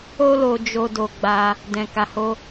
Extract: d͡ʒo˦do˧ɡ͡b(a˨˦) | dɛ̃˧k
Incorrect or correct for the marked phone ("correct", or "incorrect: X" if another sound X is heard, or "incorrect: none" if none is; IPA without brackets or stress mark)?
incorrect: a˧